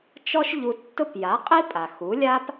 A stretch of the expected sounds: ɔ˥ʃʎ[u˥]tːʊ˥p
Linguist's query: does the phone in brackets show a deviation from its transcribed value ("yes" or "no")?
yes